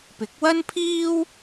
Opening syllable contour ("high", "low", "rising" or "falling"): rising